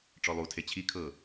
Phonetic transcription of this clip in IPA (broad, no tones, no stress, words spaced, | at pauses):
ʈ͡ʂɔlˠutʰe t͡ɕʰi kʰɤ